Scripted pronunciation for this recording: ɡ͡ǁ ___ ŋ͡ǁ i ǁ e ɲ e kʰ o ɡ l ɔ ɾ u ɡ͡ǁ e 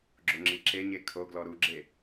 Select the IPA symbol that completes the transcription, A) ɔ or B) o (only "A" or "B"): B